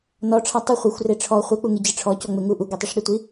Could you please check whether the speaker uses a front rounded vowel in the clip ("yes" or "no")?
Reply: no